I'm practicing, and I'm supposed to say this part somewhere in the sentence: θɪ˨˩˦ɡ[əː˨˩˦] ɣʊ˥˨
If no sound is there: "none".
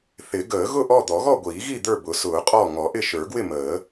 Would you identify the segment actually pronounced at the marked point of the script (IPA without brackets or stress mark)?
əː˨˩˦